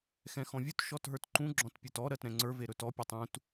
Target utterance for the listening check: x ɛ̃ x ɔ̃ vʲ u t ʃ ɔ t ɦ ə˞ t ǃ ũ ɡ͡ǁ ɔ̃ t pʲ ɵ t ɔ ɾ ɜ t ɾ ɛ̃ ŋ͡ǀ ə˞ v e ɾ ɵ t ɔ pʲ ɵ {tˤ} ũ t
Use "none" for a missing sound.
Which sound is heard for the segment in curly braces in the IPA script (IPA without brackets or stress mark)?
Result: tˤ